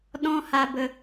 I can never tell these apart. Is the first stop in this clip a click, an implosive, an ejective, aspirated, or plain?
implosive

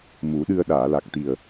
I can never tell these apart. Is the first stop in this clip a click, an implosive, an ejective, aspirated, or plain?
implosive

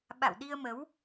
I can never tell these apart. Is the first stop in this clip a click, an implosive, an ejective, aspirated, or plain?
implosive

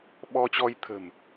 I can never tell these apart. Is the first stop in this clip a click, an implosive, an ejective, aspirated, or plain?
implosive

